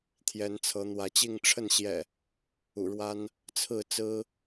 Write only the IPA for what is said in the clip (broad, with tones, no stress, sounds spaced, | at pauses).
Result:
t̪ʰ j ɛ˨˦ n t͡sʰ ɤ˨˦ n̪ w ä˨˦ t͡ɕ i˥˨ ŋ ʈ͡ʂʰ ə˥˨ n ɕ j ɛ̰˨˩ | ṵ˨˩ ɻ w a˦ n | t͡sʰ ɹ̩˥˨ t͡s ɹ̩˦